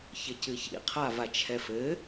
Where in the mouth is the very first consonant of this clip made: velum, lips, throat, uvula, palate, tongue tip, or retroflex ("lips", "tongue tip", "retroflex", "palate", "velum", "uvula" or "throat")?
palate